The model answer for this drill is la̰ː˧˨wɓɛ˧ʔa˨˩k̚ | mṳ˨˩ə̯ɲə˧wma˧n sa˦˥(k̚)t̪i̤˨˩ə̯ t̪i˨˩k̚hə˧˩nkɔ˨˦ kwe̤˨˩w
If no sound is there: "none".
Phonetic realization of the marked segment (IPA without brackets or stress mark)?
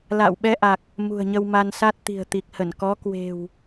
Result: t̚